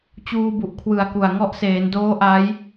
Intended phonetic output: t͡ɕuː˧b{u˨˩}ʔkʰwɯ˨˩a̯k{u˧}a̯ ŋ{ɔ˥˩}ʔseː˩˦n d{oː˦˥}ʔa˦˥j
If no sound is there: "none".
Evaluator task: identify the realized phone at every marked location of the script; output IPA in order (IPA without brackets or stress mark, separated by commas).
u˨˩, u˨˩, ɔ˦˥, oː˦˥